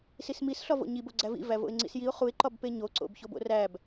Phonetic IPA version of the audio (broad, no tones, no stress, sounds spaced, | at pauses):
s i s m i s ɬ ɒ v o̰ ɲ i b o ɡ͡ǀ æ v ḭ v æ v o̰ ɪ̯ ŋ͡ǀ ḭ s j i ʊ̯ χ u ɪ̯ ǃ ɒ b p e ɲ o ǀ o̰ b ç o b o̰ r æ b